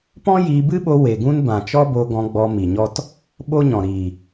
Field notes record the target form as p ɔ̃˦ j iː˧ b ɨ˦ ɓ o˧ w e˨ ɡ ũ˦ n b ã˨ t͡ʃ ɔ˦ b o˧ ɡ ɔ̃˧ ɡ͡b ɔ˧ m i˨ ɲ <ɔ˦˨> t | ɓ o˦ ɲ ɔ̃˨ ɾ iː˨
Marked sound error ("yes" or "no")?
yes